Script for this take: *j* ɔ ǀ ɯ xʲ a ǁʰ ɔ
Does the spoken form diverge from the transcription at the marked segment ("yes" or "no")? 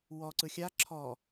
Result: yes